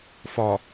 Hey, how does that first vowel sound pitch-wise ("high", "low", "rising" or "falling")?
low